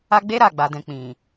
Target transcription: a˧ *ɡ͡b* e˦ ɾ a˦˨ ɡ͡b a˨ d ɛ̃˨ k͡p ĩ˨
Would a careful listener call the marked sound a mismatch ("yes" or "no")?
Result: no